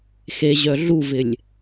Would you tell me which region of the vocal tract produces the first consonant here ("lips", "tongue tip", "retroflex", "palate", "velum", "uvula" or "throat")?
velum